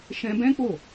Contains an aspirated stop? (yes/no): no